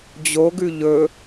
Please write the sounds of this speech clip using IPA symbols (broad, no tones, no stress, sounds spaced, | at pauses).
d͡ʑ o ɡ ʉ ʎ ɵ